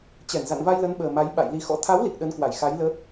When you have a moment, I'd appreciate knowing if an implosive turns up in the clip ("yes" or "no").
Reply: yes